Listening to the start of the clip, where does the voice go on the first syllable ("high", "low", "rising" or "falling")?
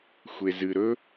low